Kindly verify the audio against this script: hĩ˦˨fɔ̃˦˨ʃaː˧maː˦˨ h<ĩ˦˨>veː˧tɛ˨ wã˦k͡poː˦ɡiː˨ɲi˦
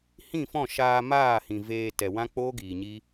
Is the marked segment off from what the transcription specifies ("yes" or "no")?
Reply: yes